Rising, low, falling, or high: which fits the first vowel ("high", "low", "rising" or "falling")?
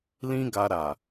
high